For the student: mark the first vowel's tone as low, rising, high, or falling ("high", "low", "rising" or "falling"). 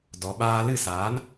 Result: low